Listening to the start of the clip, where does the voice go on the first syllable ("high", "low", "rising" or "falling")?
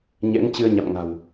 rising